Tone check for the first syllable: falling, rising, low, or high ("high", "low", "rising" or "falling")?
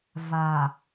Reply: low